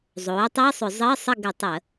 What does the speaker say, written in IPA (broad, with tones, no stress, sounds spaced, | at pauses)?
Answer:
zˤ oː˩˥ tˤ i˧˥˧ sˤ ʏ˧˩˧ zˤ əː˧˥˧ sˤ ə˥˨ ɡ ʏ˧˩˧ tˤ ə˧˩˧